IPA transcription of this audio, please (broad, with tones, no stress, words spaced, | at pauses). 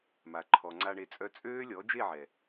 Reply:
ma˨ǃʰɔ˨ŋ͡ǀa˧ɳe˧ t͡sʼœ˧ t͡sʼøː˦ lʲɔ˨˦d͡ʒe˦˨ʕɛ˨